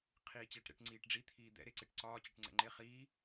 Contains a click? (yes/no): yes